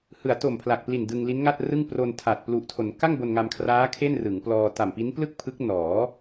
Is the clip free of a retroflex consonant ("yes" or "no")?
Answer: yes